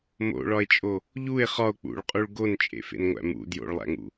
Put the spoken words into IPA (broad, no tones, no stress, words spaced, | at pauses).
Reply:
mo̰ɭɒe̯t͡ʃʼo | ʎue̯ χɒo̯ k͡pṵɭqʼuɭ ɡont͡ʃʼḛfḛnŋʷæ̰ mṵ djo̰ɭlˠæ̰ŋṵ